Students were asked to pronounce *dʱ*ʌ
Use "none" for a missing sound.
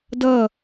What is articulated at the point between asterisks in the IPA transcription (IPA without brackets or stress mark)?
d